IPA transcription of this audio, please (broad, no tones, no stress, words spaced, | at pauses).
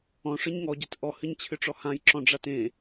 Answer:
ɔ̃ʂɨɲ ŋɔɟet ʔɔhɨɲt͡ɕʰɨʈ͡ʂɔ hãjǁɔ̃ɖ͡ʐat ẽ